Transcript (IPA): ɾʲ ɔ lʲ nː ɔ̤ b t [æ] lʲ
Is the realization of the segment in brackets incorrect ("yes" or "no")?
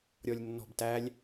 no